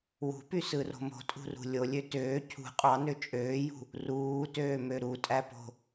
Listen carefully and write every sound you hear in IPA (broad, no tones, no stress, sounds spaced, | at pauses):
w ṳ p y s ɯ r o̤ m o̤ tʼ ṳ r ṳ lʲ o lʲ ø t øː cʰ ṳ qʼ ɑ n ø t͡ʃʼ øː j ṳ | r uː t øː m ø ɾ u tʼ æ p o̤